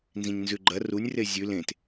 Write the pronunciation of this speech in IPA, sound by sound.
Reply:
n z ĩ ɲ n z ʉ ɡ͡ǃ ɐ r u nʲ r e zʲ ʉ l ẽ t

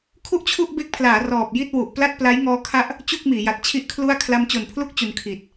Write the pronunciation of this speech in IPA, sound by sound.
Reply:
kʰ u˥˩ ʔ t͡ɕʰ u˥˩ ʔ b e˦˥ k̚ pʰ l aː˩˦ r ɔː˨˩ p̚ j i˥˩ t̚ w u˨˩ ʔ p l a˥˩ t̚ p l a˦˥ j ŋ ɔː˦˥ kʰ a˥˩ ʔ | t͡ɕ u˥˩ k̚ m iː˩˦ j a˨˩ t̚ t͡ɕʰ i˥˩ ʔ kʰ l u˥˩ a̯ kʰ l a˧ m t͡ɕ o˨˩ n pʰ l u˦˥ k̚ t͡ɕ u˧ n kʰ i˨˩ t̚

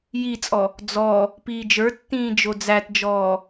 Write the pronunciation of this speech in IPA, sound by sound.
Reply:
j i t͡sʼ ɔ | d͡z ɔ | p iː d͡ʒ ə˞ tː ĩː d͡ʒ o d͡z æ t d͡ʒ ɔː

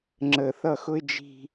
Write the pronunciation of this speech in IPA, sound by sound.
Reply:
ŋ͡ǁ ə˨ θ ʌ˦˨ x ʊ˦ ɪ̯ d͡ʒ i̤˦

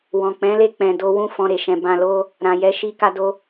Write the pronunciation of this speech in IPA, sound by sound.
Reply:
w ɔ̃˨ k͡p ɛ̃˨˦ l e˦˨ k͡p ɛ̃˧ d o˦ w ũ˦˨ f ɔ̃˧ ɾ e˨ ʃ ɛ̃˧ b ã˧ l o˦ | ɾ ã˨ j ɛ˨˦ ʃ i˧ k a˧ d o˧

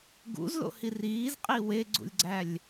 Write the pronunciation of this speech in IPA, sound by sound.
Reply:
ɡ ṵ z l o̰ h i r iː z qʼ i w e ɡ͡ǀ ṵ lʲ ɡ͡ǀ æ lʲ

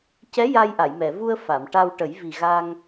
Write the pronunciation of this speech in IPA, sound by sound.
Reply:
c ɛ˧˥ j a˧ j ʔ a˨˩˨ j m ɛ˨˩˨ v u˧ ə̯ f a˨˩˨ m ʈ a˧ w ʈ ə˨˩˦ j v i˨˩ ɣ a˧ ŋ

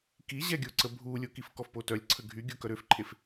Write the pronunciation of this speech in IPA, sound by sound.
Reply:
k i ʑ ɛ ɡʲ o ǀ ə bʱ u lʲ o k i f k ɔ f p o t œ lʲ ǀʰ ə ɡʱ y ɡʲ o k œ ɾ ø f ǃʰ e f

